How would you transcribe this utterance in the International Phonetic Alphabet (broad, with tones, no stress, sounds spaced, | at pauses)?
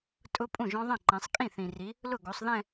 tʼ ʊ˦˥ pʼ ũ˥˩ ʒ ɔ̃˦˥ ðˤ ĩ˥˩ ǃ ẽ˨˦ sˤ kʼ ĩ˥˩ θ ĩ˨ r i˨˦ | l ʊ˥˩ ɡ o˨˦ sˤ ð ɛ̃˥˧